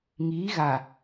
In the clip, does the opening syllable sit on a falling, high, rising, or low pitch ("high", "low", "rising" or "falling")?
rising